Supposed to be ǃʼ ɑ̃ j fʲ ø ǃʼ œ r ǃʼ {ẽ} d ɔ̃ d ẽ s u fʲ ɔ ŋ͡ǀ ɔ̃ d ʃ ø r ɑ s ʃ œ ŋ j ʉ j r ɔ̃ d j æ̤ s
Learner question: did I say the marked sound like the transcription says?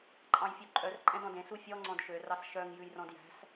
no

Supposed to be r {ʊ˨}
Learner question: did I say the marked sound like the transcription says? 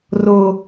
yes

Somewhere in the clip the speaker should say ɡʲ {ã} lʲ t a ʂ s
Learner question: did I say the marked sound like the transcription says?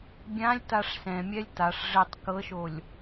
yes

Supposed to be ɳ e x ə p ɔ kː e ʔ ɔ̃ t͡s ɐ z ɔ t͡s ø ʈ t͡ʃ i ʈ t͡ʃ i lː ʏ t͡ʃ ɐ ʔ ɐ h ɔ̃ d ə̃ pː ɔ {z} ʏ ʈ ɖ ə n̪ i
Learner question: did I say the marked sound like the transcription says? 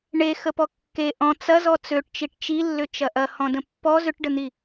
yes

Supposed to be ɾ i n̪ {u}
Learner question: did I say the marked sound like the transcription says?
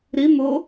no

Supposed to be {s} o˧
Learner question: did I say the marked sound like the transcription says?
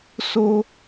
yes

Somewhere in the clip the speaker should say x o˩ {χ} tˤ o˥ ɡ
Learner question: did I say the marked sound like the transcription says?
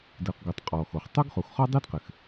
yes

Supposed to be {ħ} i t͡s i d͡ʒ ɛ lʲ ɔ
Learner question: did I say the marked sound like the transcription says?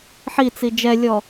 yes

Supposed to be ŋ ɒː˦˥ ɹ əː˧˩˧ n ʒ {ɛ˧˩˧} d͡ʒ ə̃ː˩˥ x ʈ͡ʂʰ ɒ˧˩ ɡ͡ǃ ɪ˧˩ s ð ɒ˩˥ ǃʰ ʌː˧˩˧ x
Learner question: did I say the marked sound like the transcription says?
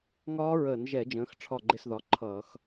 yes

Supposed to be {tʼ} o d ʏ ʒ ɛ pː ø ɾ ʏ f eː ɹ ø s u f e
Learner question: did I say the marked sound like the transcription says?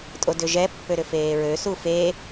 yes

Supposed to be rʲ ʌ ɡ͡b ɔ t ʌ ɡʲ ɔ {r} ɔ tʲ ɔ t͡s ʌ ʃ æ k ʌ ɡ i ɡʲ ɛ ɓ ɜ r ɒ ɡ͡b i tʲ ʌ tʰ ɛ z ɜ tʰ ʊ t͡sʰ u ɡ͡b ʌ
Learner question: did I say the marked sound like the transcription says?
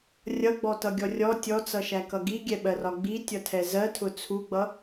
no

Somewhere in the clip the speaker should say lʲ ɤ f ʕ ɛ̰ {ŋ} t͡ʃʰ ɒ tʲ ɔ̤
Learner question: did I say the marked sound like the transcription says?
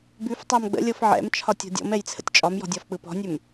no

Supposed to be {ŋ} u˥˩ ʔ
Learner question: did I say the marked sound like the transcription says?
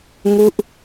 yes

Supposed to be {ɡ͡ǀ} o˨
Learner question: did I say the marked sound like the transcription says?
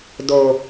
no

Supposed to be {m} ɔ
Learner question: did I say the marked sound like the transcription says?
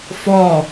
no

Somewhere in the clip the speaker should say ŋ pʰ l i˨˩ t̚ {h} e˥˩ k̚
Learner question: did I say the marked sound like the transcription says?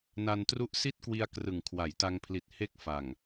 yes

